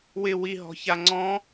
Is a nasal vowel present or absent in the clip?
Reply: present